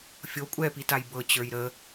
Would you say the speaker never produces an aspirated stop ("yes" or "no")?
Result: yes